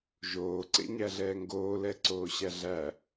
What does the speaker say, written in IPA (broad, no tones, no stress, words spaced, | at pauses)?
ʒoː ǀḛɲæɮɛːŋɡoː lɛǀoːɕæɮæ